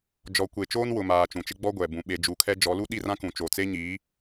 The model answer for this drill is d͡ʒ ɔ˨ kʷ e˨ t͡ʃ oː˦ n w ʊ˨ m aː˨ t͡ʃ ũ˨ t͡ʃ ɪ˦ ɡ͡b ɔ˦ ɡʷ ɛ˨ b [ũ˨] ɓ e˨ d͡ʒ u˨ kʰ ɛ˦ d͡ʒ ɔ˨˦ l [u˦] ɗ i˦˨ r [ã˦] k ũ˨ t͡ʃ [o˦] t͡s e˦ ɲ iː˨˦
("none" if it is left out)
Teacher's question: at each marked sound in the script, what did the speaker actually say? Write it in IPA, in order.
ũ˨, u˦, ã˦, o˨

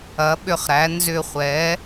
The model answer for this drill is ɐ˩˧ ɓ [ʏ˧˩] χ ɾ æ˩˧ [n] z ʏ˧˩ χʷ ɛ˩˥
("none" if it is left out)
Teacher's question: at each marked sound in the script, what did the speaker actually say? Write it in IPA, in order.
ʏ˧˩, n

